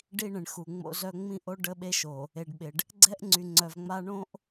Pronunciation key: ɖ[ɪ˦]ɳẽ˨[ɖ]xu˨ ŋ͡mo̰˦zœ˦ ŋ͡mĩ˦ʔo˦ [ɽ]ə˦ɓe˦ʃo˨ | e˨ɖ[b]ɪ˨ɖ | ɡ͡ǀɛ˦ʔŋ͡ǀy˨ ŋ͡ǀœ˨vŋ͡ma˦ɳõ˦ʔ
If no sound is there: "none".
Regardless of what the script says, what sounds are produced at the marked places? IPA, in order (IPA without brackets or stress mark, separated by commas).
i˦, ɳ, ɖ, ɓ